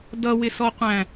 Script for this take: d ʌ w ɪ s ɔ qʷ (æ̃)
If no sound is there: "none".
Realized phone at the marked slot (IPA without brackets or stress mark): æ̃